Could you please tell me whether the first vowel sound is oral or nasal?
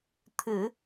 oral